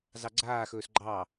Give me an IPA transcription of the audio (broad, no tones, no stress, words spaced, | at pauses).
zɑɡ͡ǀaːxɵːs ɡ͡ǃɑ